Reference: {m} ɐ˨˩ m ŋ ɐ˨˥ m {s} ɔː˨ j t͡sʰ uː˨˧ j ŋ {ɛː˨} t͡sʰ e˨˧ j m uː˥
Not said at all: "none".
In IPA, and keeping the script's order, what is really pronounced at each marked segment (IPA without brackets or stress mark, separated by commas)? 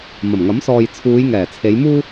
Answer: m, s, ɛː˨˩